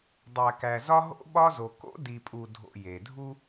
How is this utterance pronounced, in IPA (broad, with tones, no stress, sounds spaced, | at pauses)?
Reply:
dˤ æ˨ k æ˨ z ɒ˦ ɦ o̰˦ ɓ ɒ˦ z o˨ k o̰˦ d i˨ pʼ u˨ dʱ o̰˨ j e˨ dʱ u˦